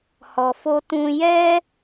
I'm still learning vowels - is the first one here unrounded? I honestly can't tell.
no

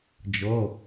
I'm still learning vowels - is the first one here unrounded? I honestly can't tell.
no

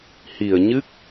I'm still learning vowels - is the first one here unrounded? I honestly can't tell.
yes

